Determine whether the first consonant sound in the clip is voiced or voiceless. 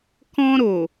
voiceless